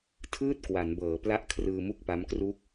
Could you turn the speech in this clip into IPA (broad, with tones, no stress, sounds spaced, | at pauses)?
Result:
tʰ ɯː˥˩ t̚ k w a˩˦ n b ɤː˩˦ p l a˦˥ ʔ kʰ r ɯː˧ m u˥˩ k̚ p a˦˥ m k r u˥˩ k̚